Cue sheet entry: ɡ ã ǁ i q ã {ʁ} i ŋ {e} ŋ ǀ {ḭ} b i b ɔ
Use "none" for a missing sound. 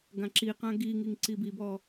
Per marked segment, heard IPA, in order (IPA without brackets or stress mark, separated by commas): ɡ, i, i